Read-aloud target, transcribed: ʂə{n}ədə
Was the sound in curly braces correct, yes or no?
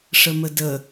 no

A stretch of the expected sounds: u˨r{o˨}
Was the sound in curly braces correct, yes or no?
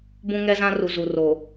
yes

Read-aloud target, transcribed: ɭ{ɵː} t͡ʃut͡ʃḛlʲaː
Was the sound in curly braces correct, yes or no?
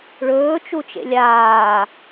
yes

